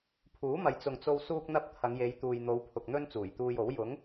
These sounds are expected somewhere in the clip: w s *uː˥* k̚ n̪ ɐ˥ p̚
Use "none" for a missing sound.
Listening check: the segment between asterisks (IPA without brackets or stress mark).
uː˥